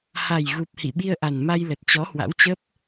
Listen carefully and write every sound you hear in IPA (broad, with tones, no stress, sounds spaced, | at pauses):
h a˨˩ j ɣ u˨˩ p̚ h ḭ˧˨ ɓ i˧ ə̯ ʔ a˨˩ n m a˧ j l ə˨˩ t̚ t͡ɕ ɔ˨˦ h w a̰˧˥ w t͡ɕ ə˦˥ p̚